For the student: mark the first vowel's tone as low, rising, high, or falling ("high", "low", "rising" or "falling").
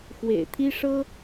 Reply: low